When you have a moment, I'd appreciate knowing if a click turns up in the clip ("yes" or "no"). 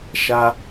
no